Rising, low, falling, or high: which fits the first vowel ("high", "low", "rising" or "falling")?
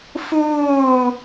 falling